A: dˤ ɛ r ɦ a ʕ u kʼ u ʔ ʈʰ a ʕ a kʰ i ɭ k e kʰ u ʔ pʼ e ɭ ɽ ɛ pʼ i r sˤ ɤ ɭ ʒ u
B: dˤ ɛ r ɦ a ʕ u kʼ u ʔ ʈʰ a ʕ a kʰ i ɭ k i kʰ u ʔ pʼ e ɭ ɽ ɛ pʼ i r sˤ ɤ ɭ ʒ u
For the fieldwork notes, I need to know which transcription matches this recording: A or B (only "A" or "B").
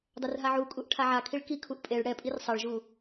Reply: B